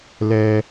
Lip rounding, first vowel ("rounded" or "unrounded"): unrounded